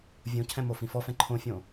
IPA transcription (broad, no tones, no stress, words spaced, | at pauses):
vʲõcʰɛ̃ mofĩfɔfɛ̃ ǃʰõfʲõ